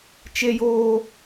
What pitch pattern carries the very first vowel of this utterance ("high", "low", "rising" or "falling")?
high